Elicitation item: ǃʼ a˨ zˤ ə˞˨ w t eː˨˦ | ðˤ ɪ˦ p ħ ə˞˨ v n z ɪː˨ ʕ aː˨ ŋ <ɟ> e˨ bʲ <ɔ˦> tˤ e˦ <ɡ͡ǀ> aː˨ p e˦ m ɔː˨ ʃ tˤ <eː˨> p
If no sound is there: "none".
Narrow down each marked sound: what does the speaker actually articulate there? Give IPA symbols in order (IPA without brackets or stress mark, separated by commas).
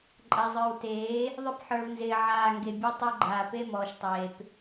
ɡ, ɔ˦, ɡ͡ǃ, eː˨